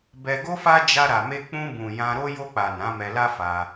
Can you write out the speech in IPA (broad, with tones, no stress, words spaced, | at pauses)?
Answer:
bɛ˧ɡo˦fa˦ d͡ʒa˧ɾa˨me˧ k͡pũ˧bũ˨ jã˧ɾo˦ jo˧k͡pa˨ nã˨˦mɛ˧la˦ fa˧